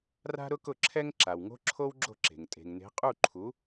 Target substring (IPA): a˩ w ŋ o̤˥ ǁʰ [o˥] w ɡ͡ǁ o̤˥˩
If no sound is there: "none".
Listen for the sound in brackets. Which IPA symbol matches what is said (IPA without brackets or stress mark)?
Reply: o˥